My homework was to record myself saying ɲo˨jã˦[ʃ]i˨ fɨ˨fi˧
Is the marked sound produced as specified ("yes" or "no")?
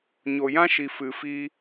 yes